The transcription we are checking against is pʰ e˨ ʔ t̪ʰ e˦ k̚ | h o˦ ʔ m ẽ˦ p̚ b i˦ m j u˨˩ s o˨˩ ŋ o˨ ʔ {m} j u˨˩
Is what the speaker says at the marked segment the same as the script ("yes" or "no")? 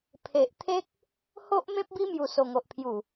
no